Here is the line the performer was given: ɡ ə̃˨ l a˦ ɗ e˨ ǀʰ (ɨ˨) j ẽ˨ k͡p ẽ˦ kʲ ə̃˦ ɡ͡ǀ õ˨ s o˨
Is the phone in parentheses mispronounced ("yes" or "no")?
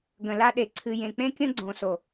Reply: no